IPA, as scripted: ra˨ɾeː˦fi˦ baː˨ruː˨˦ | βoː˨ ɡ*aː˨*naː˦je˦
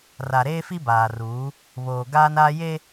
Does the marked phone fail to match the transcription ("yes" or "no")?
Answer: yes